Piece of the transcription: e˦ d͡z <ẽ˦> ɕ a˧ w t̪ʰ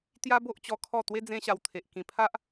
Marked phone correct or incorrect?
correct